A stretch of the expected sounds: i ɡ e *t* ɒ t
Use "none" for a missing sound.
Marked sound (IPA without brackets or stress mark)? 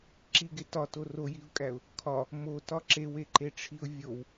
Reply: t